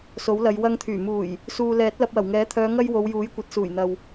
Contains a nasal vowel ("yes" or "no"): no